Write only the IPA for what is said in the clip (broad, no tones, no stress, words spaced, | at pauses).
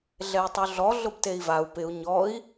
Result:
ɮɛu̯tˤuɮɔ ɮʊbtei̯vau̯ pɪu̯ ɲɔi̯